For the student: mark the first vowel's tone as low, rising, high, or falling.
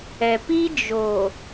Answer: low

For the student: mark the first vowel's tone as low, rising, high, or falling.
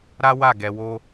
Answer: high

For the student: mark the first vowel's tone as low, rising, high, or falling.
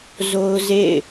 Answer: high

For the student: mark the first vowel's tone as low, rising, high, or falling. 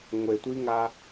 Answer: low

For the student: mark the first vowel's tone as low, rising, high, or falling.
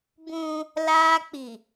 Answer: high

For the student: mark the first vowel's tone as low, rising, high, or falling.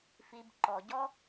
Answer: low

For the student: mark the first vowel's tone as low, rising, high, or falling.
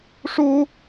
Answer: high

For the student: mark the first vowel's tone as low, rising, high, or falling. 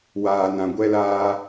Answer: low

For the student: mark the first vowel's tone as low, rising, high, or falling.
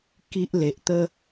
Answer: high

